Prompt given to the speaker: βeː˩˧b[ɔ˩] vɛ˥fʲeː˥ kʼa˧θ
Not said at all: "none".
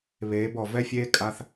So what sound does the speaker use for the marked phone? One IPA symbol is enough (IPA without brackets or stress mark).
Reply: ɔ˩